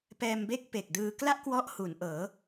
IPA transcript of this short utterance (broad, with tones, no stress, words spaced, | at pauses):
pɛː˧mbe˥˩k̚pe˨˩k̚dɯː˧ kla˥˩ʔkwɔ˦˥ʔ hu˩˦nʔɤː˩˦